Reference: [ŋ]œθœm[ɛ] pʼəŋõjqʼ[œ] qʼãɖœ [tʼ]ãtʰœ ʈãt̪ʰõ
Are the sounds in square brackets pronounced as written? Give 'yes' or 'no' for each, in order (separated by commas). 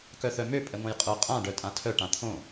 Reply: no, no, yes, yes